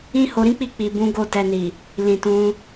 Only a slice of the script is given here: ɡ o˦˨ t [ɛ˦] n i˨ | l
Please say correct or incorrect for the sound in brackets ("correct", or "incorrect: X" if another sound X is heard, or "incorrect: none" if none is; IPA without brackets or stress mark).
incorrect: ɛ˧